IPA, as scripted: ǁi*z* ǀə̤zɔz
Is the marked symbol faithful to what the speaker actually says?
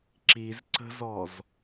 yes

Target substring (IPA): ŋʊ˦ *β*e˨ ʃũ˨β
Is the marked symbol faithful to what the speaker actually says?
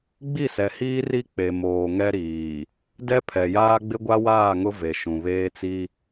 no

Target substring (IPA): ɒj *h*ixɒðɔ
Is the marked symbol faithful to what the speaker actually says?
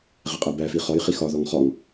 no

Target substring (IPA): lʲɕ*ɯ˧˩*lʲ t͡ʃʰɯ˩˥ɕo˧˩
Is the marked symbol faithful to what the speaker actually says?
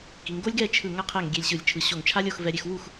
yes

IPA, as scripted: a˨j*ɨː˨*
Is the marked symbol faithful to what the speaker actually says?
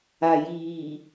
no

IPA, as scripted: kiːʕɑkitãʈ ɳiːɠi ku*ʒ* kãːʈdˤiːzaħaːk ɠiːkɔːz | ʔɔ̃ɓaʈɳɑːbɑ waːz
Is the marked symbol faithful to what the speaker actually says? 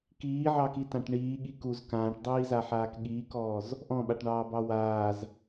no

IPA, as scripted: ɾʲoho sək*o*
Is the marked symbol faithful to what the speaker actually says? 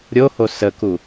no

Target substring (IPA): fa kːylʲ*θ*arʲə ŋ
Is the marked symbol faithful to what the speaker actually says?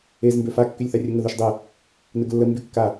yes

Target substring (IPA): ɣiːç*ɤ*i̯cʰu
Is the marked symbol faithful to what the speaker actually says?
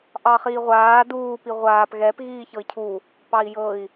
yes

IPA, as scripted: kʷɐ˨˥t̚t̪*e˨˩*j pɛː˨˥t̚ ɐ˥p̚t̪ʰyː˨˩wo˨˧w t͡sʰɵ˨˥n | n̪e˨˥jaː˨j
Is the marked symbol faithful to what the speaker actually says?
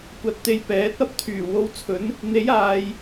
no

